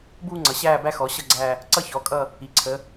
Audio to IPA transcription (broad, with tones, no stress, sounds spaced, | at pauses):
b uː˦ ŋ͡ǀ ʌ˩˧ ɕ æː˦˨ b æ˦ x ɔ˩˧ ɕ ʌ˦˨ ɡ͡ǀ æ˦˨ | ǀ ʌ˦ ç ɔ˩˧ kʼ ʌ˦˨ | i˩˧ ǀʰ ə˩˧